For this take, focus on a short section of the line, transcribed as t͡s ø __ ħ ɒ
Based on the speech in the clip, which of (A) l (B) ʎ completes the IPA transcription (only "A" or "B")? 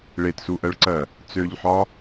B